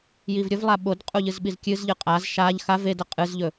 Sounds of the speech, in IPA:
j i v ɾʲ ɵ v lˠ a ɓ o d qʼ u ʎ ɨ z ɓ i z kʲ ɨ z ʎ ɨ qʼ a z ʃ a ʎ x a v e d ɐ qʼ ɨ z ʎ ɵ

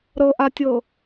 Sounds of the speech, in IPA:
ɾ ɤ ʔ a tʲ ɤ

